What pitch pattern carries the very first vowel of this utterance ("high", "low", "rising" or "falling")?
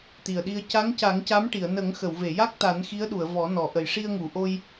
low